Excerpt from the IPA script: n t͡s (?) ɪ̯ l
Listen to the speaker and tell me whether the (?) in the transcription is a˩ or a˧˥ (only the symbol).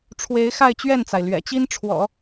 a˩